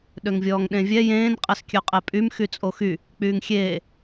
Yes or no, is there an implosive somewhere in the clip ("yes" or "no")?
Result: yes